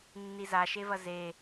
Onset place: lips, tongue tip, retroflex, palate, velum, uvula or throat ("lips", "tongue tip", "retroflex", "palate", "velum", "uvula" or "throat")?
tongue tip